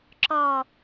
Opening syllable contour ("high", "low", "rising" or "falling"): falling